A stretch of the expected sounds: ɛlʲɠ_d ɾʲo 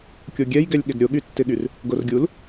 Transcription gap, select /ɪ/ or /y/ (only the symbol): ɪ